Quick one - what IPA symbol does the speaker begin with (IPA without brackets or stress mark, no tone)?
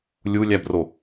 lʲ